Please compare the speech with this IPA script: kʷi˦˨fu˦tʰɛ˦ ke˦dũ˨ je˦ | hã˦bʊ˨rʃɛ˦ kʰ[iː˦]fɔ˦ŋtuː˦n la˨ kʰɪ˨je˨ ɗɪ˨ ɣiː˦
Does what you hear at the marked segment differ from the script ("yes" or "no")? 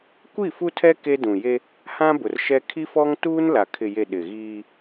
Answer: yes